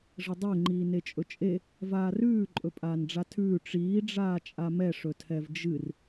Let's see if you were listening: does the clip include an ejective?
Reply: yes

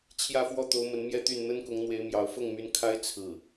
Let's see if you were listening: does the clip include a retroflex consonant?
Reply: no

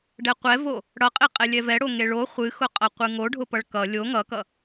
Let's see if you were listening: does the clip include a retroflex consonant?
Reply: yes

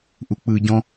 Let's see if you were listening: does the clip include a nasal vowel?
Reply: yes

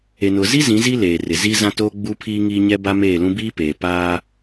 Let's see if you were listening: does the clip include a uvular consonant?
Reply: no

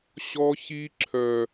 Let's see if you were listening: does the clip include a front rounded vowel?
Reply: yes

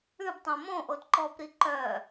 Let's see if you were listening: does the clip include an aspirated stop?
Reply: no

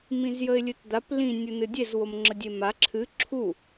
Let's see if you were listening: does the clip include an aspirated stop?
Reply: yes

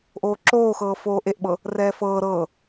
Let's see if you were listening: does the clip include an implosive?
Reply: yes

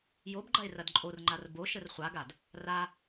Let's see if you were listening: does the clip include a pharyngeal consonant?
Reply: no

